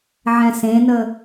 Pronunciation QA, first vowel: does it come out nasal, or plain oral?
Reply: nasal